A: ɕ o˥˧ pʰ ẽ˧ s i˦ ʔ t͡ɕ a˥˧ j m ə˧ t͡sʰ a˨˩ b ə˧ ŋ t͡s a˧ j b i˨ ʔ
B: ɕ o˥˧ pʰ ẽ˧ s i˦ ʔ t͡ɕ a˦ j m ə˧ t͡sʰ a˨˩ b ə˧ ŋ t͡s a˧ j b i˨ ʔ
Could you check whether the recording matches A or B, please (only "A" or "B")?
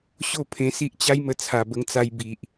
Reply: B